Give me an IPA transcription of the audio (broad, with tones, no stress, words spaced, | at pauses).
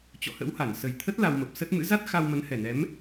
t͡ɕɔ̰˧˨hə̰˧˥wha˧˩n sə˨˩jt̪ʰə˦˥t̚ la˧wmə˨˩p̚sə˦˥t̚ mɨ̰˧˥za˦˥t̚ xa˧wmə˨˦nhɛ˨˩nɛ˨˦m